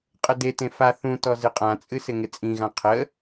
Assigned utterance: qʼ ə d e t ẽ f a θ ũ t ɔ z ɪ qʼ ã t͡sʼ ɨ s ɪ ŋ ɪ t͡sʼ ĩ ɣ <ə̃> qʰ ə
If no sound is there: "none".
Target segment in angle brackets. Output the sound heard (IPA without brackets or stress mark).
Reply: ã